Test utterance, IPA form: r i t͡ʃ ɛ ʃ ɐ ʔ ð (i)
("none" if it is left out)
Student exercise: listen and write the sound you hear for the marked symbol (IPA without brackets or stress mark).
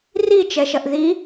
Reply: i